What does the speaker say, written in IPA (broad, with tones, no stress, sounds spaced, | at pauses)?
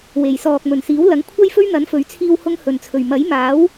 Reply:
w e˨˩ j s ɔː˨ k̚ m ɵ˨˩ n s iː˨˥ w l ɐ˨˥ ŋ kʷʰ ɐ˥ j f ɵ˥ ɥ n̪ ɐ˨˥ n f ɵ˨˥ ɥ t͡sʰ iː˧ w h ʊ˧ ŋ h ɵ˨˩ n t͡sʰ ɵ˨˩ ɥ m ɐ˨˥ j m aː˨˥ w